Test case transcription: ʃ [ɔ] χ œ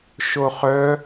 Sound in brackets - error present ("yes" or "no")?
yes